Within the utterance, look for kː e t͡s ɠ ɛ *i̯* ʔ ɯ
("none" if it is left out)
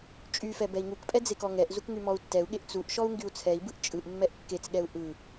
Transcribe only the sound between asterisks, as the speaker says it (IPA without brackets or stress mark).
u̯